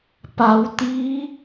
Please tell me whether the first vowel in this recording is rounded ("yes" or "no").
no